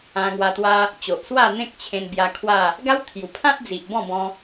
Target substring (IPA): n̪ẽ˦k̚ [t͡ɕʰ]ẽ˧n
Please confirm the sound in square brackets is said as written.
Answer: yes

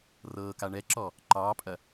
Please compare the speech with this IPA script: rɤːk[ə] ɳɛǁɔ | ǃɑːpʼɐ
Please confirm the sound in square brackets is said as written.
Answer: no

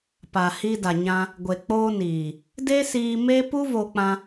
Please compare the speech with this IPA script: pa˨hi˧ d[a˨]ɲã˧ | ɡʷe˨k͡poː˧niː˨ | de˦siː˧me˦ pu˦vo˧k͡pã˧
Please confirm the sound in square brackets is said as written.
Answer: yes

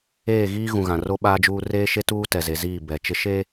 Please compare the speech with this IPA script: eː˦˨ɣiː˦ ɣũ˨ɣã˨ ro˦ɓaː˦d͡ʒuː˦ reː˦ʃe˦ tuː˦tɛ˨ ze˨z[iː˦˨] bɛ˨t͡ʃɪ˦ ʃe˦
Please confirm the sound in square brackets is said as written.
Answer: yes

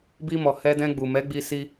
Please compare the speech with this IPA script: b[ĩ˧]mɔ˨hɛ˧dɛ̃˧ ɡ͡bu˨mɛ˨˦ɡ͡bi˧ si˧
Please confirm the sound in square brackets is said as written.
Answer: no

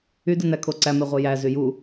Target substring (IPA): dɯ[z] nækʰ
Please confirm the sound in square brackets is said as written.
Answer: no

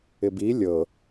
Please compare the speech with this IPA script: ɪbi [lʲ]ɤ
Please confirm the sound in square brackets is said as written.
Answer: yes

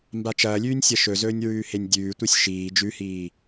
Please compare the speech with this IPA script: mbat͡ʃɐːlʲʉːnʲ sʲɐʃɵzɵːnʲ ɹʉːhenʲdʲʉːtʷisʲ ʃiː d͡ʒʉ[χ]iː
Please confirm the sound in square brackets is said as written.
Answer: no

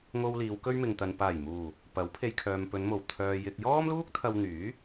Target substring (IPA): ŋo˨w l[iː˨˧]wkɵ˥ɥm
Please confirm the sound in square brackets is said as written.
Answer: yes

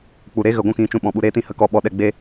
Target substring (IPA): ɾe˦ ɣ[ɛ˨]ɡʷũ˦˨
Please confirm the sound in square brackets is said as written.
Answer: no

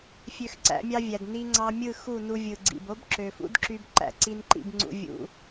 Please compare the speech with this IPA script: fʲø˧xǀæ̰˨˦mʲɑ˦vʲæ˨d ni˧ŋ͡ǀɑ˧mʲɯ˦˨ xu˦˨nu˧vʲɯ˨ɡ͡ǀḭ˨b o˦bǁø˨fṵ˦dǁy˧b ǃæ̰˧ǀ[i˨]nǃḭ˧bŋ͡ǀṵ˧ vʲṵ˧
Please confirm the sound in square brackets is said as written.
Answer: no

